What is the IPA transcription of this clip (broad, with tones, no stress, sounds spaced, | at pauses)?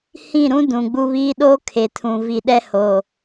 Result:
h ĩ˦˨ ɾ ũ˦ d ũ˨ ɡ͡b u˦ β iː˦ ɗ oː˦ kʰ e˨ tʰ ũ˨ v i˨ ɗ ɛ˦ h oː˨